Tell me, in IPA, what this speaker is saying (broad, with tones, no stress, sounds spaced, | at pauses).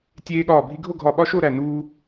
tʲ eː˧ ɠ ɒː˧˩ bʱ i˧ ɡʱ o˥˧ ɡʱ ɒ˧˩ ɓ ɒ˦˥ ʃ o˥˧ ɾ æ˧˩ n uː˧